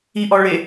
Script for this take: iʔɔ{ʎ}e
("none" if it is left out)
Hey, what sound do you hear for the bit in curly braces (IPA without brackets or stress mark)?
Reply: ɭ